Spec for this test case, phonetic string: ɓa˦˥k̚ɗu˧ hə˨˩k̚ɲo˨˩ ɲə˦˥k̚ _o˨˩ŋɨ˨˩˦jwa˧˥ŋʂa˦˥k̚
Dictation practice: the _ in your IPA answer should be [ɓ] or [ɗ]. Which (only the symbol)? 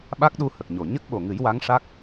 ɓ